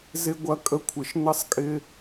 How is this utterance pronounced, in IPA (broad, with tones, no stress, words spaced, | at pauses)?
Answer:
zɪ˦ ɡʷɐ˧ kʼə˦kʷʰɪ˧ʃ nə˦sˤkʼɪ˦